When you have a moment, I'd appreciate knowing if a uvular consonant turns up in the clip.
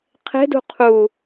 yes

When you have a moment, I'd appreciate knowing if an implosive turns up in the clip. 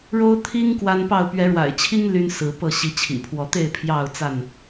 no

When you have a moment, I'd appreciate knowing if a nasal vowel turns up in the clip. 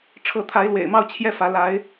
no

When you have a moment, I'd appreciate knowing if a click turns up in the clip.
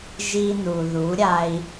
no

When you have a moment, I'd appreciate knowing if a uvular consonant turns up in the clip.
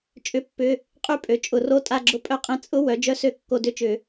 yes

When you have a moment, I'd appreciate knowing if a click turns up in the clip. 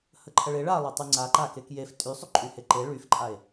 yes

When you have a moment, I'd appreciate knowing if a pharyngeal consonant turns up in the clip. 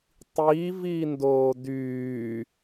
no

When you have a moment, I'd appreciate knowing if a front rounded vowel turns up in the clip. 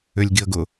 yes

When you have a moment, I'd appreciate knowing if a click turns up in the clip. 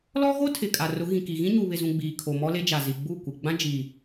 no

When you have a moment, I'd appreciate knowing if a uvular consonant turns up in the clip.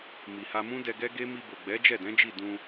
no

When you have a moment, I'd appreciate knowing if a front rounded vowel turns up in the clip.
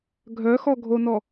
yes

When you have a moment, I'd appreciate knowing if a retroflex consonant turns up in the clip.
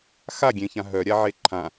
no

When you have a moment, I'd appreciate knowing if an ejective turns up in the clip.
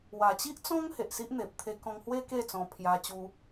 no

